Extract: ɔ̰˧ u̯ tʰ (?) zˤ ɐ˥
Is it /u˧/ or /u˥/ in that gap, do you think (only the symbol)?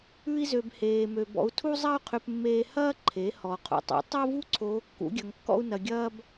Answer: u˥